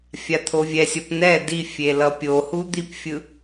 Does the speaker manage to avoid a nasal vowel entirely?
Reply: yes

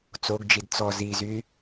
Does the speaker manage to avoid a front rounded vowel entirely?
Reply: no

